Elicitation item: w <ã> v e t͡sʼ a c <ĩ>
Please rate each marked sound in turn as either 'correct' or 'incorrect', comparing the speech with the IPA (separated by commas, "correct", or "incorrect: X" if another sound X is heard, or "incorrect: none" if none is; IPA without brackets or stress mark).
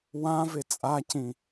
correct, correct